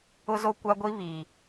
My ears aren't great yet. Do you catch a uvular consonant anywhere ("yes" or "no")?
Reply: no